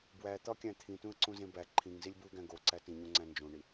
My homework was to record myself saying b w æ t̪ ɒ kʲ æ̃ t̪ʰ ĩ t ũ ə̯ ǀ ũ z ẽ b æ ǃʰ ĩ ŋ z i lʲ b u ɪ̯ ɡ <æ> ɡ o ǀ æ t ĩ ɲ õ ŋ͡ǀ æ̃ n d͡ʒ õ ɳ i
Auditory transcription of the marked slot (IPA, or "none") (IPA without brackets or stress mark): æ̃